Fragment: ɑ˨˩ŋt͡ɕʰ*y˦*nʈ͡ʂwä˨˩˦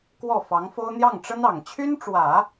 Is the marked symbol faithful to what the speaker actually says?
no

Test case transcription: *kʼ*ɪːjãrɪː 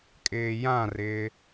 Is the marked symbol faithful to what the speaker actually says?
yes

